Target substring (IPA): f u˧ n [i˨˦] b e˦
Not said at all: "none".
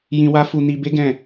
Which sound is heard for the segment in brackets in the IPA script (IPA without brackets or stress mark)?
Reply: i˧